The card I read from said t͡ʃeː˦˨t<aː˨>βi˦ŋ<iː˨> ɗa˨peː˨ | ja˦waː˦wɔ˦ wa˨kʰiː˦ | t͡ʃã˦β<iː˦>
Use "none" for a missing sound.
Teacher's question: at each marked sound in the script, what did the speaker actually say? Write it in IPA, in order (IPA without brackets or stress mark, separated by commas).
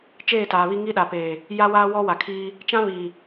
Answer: aː˨, iː˦, iː˨